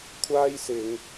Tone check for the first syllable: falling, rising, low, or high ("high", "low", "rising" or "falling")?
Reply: high